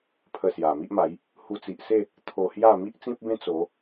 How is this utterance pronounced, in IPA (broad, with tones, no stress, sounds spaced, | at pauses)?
pʰ ə˧ s j a˨˩ m i˦ ʔ m a˨˦ j | h u˧ t͡s i˨ ʔ s e˥˧ | t̪ʰ o˧ h j a˥˧ m i˦ ʔ t͡s ĩ˦ p̚ b ẽ˦ t͡s o˨˦